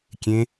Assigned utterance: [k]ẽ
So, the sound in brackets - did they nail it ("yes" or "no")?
no